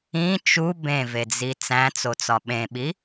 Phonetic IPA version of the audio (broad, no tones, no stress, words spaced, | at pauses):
ĩ t͡ʃu bẽved͡zi t͡sæ̃t͡sot͡sɒ ɓẽɓi